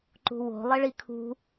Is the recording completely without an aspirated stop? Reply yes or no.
no